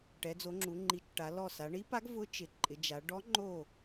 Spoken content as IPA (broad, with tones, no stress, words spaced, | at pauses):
ʈɛ˩˧d͡zo˩˧ŋ͡ǁu˩˧ŋ͡ǃi˩˥t͡ʃ ʈa˩˧lɔ˧˩ sa˩˧ɳi˧˥pa˧˥ɡ vʊ˧˥t͡ʃɪ˩˧ǃʼɪ˩˧d͡ʒa˩˧ ɖɔ˧˥ ŋ͡ǃo˧˩